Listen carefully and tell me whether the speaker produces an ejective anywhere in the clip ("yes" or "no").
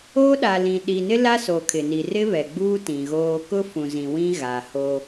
no